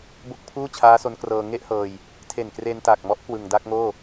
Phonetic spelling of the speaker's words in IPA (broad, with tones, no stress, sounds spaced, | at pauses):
b o˥˩ k̚ pʰ uː˥˩ t͡ɕʰ aː˦˥ s o˦˥ n k r ɤː˧ ŋ e˥˩ ʔ h ɤː˧ j | tʰ e˨˩ n k r e˧ n t a˨˩ k̚ m ɔ˦˥ ʔ k w ɯ˨˩ ŋ d a˥˩ k̚ ŋ oː˥˩